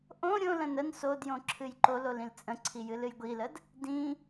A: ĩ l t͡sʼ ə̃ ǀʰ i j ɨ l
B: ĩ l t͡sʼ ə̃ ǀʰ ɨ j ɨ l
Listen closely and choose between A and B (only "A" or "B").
A